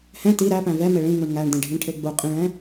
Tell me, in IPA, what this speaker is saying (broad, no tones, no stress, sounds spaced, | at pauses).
h ɛ̃ t i ɾ æ p æ̃ v ɛ m e ɭ ĩ ŋ u ɳ ŋ æ ɳ d ẽ ɖʱ ĩ ɳ ʈʰ e ɡ͡b u qʼ ĩ ɭ ɛ̃